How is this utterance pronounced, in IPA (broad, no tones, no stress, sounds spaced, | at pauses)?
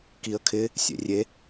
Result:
k i ə̯ kʰ ɪ | sʲ ḛ rʲ e